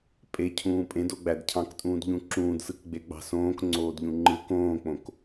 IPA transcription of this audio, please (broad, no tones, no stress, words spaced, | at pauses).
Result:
pʼe cʰũːpʼẽd oɡ͡bædcʰɑ̃ktʼũːd ʎũǁũːdsɯk ɡ͡beɡ͡bɑ̤sõːk ŋ͡ǀoːdʎũŋ͡ǃɯ kõːk͡põk